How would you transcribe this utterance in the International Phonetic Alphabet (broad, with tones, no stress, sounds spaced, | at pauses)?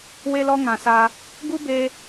w e˦ l ɔ˦ ŋ ã˨ s a˧ | ɡ u˦ b e˧